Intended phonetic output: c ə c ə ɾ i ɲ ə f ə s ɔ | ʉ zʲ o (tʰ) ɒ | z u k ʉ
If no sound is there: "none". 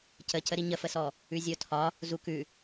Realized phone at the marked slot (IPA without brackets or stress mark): tʰ